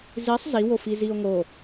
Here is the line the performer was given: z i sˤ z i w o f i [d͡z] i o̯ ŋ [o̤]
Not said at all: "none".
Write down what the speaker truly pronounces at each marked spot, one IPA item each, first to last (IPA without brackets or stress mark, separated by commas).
z, o